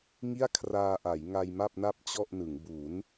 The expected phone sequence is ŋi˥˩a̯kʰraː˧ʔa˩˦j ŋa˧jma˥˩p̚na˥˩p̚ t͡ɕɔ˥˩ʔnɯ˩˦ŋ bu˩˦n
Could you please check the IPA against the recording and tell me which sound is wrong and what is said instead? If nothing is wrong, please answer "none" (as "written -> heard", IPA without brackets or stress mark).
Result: none